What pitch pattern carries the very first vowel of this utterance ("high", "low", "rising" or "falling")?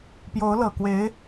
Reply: rising